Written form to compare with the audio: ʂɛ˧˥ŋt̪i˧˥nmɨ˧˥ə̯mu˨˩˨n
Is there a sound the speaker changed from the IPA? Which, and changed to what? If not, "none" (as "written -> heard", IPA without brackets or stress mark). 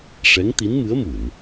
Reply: none